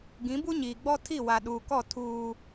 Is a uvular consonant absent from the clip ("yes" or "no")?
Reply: yes